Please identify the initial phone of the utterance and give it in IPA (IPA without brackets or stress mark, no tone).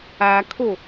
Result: a